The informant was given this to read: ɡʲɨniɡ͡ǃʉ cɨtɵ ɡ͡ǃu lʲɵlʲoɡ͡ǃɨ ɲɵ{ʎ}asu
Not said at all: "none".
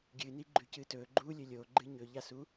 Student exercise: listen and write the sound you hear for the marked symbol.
ʎ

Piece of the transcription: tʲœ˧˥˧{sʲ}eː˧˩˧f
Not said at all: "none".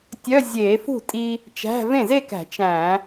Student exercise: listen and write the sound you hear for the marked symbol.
zʲ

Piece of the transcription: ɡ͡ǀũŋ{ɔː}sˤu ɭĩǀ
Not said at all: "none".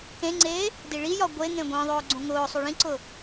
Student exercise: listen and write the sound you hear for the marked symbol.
ʊː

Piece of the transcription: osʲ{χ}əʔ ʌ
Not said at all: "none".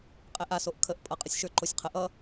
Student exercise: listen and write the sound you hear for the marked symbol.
qʰ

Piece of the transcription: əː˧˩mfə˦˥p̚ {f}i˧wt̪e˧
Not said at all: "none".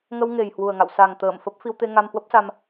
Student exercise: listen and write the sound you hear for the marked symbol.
f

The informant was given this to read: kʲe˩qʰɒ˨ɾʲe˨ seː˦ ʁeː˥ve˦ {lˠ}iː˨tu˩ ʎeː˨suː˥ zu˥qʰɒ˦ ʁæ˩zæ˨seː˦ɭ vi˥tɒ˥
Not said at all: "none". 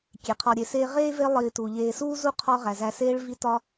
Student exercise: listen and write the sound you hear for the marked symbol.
lˠ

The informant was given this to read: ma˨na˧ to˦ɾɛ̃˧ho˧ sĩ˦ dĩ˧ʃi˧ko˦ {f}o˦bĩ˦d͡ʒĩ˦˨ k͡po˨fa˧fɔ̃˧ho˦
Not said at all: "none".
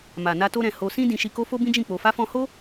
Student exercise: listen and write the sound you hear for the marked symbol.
f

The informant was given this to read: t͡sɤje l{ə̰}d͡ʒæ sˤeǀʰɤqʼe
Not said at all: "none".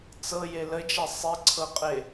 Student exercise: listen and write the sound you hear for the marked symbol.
ə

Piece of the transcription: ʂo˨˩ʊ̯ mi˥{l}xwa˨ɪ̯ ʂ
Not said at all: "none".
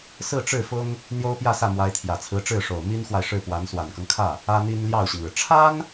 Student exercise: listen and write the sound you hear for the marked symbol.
n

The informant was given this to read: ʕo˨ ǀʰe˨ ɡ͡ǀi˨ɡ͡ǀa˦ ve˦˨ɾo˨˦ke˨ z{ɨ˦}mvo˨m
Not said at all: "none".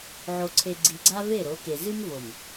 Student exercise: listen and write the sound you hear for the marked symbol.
ɨ˦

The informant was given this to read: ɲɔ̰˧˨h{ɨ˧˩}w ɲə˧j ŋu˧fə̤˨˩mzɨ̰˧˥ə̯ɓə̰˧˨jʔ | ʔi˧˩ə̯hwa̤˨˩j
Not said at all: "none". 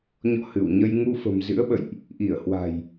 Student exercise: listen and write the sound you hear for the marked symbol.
ɨ˧˩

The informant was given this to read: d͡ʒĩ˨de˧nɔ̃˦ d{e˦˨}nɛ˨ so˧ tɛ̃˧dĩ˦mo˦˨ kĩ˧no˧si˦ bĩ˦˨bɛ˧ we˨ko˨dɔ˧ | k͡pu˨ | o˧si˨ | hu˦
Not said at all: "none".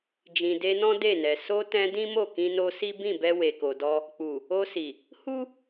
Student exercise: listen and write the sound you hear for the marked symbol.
e˦˨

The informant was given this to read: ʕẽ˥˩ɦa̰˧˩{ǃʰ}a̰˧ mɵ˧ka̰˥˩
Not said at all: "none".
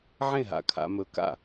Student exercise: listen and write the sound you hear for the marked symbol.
kʰ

